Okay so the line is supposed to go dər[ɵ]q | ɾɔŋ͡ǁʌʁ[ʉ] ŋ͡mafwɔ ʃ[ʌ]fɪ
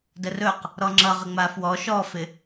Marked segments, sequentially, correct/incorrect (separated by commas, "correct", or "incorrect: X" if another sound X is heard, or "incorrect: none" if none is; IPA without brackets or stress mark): correct, incorrect: ə, incorrect: ɔ